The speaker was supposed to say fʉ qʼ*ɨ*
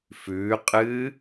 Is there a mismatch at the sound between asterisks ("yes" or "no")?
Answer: no